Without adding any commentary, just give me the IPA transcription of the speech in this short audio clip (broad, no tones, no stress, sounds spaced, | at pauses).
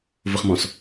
v ʊ χ m ɔ̃ s